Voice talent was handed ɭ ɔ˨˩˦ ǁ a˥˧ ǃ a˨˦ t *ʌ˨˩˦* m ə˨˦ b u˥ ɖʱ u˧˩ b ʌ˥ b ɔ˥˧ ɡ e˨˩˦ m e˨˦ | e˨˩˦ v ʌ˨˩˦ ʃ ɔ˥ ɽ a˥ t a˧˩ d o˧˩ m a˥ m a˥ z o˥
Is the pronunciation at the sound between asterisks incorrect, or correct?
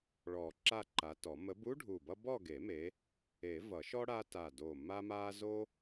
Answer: incorrect